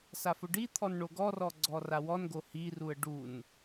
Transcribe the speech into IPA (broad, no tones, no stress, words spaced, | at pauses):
safʊɖit̪ʰɔn ɳoɡɔrɔ ɡ͡ǀɔrawɔnɡo hiruə̯ ɖun